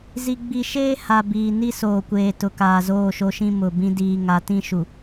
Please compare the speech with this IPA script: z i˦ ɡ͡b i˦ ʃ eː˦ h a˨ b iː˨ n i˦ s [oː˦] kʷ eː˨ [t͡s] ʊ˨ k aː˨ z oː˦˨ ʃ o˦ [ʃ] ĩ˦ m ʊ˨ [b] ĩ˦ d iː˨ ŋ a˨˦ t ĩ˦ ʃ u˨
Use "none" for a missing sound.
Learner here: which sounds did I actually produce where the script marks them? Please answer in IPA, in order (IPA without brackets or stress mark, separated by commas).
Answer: oː˨, t, ʃ, b